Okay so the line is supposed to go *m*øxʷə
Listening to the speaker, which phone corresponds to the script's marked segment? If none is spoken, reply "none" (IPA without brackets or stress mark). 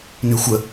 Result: n